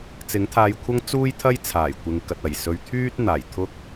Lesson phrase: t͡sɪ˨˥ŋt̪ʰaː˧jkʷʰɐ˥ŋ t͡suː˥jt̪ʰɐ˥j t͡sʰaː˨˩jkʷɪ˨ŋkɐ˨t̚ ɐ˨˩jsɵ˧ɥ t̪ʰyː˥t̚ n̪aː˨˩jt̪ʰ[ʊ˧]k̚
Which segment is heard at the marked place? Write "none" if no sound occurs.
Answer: ʊ˥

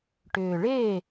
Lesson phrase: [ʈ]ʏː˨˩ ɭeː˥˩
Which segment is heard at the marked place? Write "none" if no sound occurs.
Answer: ʈ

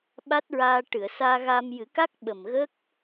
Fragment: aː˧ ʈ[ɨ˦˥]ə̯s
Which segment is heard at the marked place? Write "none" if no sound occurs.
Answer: ɨ˨˩˨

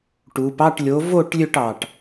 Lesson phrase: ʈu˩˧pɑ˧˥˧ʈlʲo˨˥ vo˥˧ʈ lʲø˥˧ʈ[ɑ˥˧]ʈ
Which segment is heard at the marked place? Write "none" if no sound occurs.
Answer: ɑ˨˩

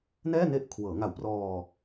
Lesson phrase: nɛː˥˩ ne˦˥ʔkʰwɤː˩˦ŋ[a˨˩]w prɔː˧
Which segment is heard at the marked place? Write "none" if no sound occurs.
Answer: a˨˩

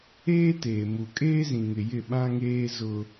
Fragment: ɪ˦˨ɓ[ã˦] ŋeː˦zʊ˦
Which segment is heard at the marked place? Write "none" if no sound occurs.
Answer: ã˦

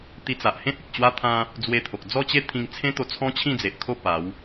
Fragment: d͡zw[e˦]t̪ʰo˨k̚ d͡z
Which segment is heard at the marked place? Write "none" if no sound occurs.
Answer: e˧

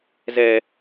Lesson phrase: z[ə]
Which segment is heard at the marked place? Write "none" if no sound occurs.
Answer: ɛ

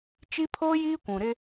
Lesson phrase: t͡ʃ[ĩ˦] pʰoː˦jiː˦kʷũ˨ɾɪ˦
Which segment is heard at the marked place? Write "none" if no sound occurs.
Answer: i˦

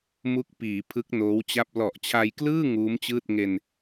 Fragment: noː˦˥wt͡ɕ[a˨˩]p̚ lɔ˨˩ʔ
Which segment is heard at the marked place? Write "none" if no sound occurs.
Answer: a˥˩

